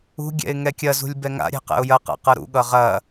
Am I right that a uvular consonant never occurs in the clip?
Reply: no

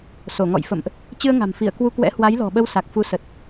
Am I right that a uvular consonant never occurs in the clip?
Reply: yes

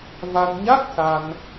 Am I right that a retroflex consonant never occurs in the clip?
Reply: yes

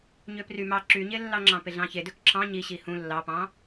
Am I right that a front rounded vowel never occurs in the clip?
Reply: no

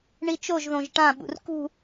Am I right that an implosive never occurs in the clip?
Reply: no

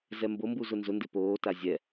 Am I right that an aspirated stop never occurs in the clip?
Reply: yes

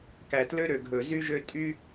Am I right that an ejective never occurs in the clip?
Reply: no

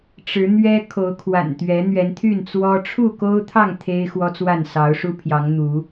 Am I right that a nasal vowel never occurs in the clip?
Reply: yes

